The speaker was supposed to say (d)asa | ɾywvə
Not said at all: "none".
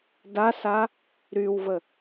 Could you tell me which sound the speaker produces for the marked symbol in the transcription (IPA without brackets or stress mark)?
d